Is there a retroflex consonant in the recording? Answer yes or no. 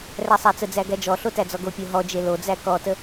no